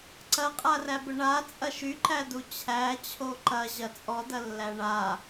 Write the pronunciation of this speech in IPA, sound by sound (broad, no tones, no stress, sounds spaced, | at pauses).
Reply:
ǀ ɐ qʼ a r æ b ə ɳ a t͡sʼ ɐ ʃ y ǃ æ d u t͡ɕʰ æ t͡ɕʰ o ǃ ɐ ʑ ɐ t͡sʼ ɔ d ɐ lː æ ɳ a